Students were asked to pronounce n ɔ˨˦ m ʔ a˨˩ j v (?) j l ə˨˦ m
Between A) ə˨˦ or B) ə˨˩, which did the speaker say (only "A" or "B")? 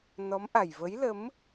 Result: A